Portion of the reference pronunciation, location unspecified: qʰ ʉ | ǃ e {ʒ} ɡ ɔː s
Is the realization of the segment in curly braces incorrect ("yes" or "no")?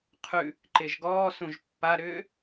no